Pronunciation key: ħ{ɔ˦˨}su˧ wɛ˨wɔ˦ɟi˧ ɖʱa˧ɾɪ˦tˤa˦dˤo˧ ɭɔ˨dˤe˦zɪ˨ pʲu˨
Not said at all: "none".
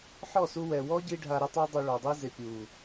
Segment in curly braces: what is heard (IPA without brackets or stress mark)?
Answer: ɔ˦˨